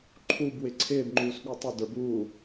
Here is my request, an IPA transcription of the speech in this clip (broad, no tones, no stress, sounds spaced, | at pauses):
ǃʰ u b w ɪ ǀʰ ɪː b ŋ͡ǃ uː s ɠ u tˤ ɪ d ə˞ b uː